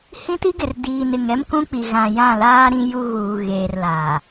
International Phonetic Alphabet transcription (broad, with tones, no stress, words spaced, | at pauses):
hĩ˦ti˦ɡɪ˨r diː˨n ɪ˨ŋɛ˦mkũ˦k͡pi˨ ɣã˨jã˦˨laː˦ ɾĩ˦ju˦ɣuː˨ ɣeː˨rlaː˨